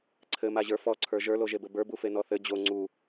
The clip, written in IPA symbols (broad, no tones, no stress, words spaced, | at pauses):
ǀʰɘmaʑə˞ fɔǀʰə˞ ʒə˞loʒebɘ bə˞bufenɔ θɘ d͡ʑo ŋ͡ǀu